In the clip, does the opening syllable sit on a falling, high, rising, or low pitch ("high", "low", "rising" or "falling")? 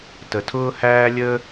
low